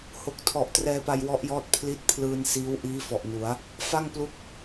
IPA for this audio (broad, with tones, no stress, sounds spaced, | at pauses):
h o˨˩ k̚ tʰ ɔ˨˩ ʔ t r ɛː˧ p a˧ j w ɔ˦˥ ʔ j ɔː˦˥ t̚ pʰ l i˦˥ t̚ pʰ l ɯː˧ n s iː˦˥ w ʔ iː˦˥ f ɔ˨˩ ʔ n u˩˦ a̯ | f a˥˩ ŋ p l u˦˥ k̚